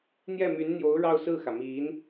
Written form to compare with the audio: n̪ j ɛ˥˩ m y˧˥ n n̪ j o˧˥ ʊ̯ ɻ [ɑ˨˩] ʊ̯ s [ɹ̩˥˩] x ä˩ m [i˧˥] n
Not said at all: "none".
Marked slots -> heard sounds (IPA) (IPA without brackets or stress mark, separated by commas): ɑ˥˧, ɹ̩˥˩, i˧˥